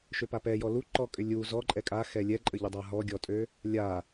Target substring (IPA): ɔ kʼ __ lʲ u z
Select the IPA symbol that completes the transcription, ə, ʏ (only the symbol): ʏ